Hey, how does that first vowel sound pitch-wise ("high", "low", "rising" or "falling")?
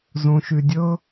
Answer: low